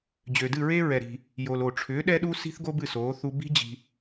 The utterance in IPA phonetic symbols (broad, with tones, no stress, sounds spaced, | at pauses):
d͡ʑ ø˩ d ɨ˥˩ ɹ e˥ ɹ ɛ˩ ɾ i̤˩ | j o˩ l o˩ ʈ͡ʂʰ ʏː˩˥ ɗ ɛ˥ ɗ u˥ s i̤˥ θ ɡ o˥ b ɨ˥˩ s oː˩˥ θ u˧ b i̤˥ d͡ʑ i̤˧